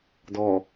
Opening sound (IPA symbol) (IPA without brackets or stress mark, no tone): d